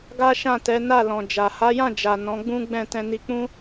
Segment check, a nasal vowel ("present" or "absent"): present